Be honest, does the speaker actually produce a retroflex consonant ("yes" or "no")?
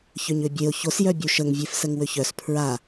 no